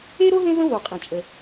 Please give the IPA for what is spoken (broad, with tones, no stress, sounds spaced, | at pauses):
e˥ ɾ o˥ ɦ ẽ˥ z ə̃˥ v o˩ qʼ ẽ˩ t͡ʃʼ ə˩